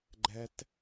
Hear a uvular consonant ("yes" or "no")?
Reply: no